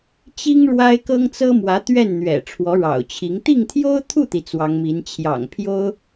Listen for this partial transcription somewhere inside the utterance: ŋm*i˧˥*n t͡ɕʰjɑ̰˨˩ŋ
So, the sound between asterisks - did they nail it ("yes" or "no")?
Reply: yes